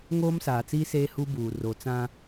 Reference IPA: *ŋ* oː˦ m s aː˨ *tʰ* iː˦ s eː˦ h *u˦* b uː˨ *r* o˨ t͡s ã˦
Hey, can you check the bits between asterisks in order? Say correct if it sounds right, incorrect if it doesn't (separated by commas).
correct, incorrect, correct, correct